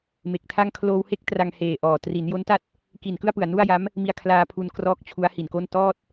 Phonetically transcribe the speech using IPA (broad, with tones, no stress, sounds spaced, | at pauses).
m e˨˩ k̚ tʰ a˥˩ ŋ kʰ l oː˧ w h e˥˩ k̚ t r a˧ ŋ h eː˨˩ ʔ ɔː˨˩ t r i˩˦ n j o˦˥ n t a˥˩ t̚ | k i˨˩ n k ɯ˥˩ a̯ p ɯ˨˩ a̯ n u˥˩ a̯ j a˦˥ m | m i˧ a̯ kʰ l aː˧ pʰ u˧ n k r ɔː˦˥ k̚ t͡ɕʰ u˦˥ a̯ h i˨˩ n k o˥˩ n t ɔː˥˩ t̚